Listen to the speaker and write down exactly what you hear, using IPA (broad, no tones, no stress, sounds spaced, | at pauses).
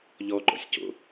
ʎ ɔ ɡ͡ǃ ɔ̰ sʲ c o̰